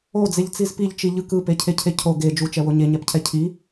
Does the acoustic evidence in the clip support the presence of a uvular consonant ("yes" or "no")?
no